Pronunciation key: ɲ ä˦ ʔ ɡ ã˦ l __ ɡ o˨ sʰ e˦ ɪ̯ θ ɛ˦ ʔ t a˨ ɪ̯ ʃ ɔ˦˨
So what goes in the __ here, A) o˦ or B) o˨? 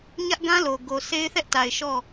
B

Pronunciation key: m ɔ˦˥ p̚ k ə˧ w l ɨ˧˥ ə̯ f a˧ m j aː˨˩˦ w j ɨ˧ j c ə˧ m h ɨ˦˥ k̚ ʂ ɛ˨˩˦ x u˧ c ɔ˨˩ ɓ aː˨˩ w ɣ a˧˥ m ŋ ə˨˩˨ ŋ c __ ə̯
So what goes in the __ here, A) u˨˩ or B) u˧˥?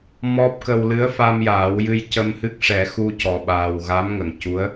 B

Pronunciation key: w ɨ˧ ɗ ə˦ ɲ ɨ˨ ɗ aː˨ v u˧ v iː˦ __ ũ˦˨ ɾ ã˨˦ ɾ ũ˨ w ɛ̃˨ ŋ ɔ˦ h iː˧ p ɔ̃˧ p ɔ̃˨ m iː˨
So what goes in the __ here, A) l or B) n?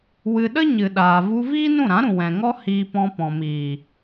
B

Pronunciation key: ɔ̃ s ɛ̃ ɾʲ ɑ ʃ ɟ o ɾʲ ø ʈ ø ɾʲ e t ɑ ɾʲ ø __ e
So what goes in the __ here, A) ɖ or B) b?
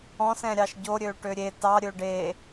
A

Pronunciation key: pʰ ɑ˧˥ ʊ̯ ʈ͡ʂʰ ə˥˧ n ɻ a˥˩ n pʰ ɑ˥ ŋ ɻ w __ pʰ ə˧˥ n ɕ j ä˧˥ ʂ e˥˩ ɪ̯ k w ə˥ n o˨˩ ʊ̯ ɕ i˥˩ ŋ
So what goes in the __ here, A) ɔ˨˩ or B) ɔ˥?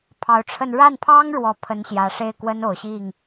A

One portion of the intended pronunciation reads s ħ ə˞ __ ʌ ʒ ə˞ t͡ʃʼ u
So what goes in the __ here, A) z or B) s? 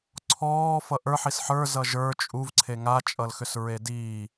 A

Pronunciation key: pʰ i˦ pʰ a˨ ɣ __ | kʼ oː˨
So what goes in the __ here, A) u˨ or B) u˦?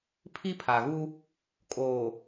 B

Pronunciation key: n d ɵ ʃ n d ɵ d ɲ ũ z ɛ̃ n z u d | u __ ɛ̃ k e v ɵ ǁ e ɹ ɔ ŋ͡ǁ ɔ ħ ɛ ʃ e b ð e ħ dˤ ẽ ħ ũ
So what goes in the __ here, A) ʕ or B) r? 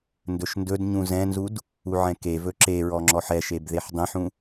A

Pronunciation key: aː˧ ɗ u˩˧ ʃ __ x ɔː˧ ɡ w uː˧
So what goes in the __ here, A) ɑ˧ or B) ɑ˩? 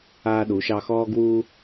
A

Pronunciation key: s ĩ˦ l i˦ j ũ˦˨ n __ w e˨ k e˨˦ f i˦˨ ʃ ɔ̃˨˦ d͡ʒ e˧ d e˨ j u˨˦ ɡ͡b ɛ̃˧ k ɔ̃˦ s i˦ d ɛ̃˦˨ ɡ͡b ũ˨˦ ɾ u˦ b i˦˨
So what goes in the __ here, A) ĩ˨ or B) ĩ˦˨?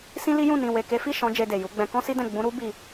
A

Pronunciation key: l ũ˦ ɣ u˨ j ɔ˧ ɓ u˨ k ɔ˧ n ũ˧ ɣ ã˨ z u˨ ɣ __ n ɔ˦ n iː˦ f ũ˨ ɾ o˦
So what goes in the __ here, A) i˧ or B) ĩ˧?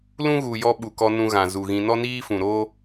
B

